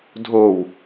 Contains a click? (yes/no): no